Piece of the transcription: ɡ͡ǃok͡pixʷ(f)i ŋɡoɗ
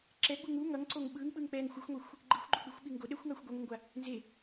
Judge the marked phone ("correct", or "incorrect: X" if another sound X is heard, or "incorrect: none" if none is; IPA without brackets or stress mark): incorrect: ɓ